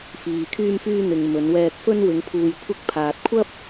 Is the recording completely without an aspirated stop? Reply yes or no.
no